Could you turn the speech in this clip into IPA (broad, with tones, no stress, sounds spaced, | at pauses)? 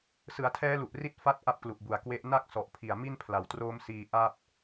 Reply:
s ɯ˩˦ a̯ tʰ ɛː˦˥ l u˨˩ ʔ r i˦˥ t̚ f a˥˩ t̚ ʔ a˥˩ p̚ k l u˨˩ ʔ b u˨˩ a̯ k w e˦˥ ʔ n a˥˩ k̚ s ɔ˨˩ ʔ pʰ i˨˩ a̯ m i˥˩ n pʰ l a˨˩ w t r oː˦˥ m s iː˧ ʔ a˥˩ p̚